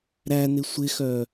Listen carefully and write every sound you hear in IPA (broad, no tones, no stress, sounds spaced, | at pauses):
ɾ æ n ɪ sʷ ɪ x œ